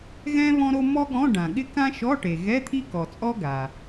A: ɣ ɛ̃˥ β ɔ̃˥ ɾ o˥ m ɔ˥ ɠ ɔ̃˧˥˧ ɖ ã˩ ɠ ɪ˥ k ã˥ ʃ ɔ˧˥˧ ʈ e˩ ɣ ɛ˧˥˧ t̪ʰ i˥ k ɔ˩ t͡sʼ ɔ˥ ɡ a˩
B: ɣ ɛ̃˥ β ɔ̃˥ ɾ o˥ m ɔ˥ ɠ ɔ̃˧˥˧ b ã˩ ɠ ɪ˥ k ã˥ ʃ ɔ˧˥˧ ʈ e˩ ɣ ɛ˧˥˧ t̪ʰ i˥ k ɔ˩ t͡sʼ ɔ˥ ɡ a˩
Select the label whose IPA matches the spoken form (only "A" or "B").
A